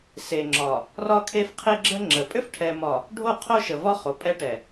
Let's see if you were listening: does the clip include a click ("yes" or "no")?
yes